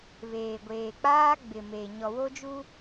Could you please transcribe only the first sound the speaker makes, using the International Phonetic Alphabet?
β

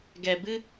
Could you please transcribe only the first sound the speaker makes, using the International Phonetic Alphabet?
ɡ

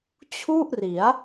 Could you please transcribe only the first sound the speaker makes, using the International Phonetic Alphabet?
t͡ɕʰ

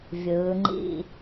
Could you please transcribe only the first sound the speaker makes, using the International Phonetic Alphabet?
vʲ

